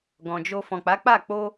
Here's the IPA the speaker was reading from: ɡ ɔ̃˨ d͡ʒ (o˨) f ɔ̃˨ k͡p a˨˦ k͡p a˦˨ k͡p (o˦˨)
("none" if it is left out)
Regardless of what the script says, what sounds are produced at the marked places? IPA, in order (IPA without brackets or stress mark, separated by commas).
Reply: o˧, o˧